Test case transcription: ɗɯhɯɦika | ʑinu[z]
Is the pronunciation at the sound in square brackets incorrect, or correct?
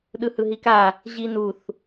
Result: incorrect